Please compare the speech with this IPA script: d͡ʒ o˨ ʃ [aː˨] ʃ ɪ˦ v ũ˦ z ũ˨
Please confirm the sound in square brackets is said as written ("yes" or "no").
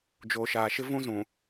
yes